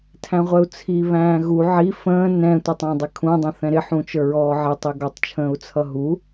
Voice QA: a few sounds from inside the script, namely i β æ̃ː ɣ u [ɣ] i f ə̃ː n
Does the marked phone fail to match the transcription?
yes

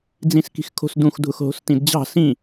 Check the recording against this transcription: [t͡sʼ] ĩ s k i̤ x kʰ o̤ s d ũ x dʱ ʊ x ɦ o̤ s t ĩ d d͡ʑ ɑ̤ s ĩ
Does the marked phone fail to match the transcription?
yes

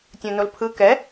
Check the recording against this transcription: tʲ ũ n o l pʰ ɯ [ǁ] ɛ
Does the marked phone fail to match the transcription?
yes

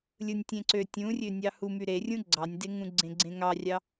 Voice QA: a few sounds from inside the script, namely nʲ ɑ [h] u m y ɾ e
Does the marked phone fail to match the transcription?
no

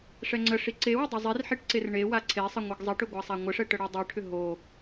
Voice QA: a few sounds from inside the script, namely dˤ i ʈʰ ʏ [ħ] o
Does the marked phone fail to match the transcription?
yes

